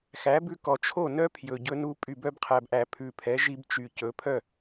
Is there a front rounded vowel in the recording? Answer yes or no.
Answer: yes